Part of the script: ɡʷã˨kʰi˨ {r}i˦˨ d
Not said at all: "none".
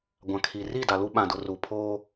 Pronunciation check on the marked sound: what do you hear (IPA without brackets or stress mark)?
r